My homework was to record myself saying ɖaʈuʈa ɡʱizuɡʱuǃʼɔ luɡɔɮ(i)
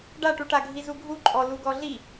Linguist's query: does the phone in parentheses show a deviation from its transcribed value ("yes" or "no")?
no